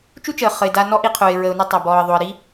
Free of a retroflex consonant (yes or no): yes